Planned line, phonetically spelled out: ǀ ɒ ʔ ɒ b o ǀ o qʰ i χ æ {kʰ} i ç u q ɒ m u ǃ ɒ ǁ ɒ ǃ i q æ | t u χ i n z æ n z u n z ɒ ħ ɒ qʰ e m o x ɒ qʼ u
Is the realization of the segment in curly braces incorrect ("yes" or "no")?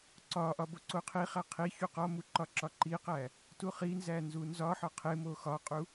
yes